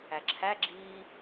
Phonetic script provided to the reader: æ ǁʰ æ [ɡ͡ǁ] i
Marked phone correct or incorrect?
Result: correct